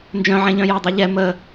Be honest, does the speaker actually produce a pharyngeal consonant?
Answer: yes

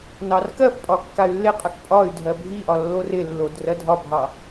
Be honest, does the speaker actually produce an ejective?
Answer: yes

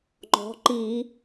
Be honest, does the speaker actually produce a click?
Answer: yes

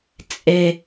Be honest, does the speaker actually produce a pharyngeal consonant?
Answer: no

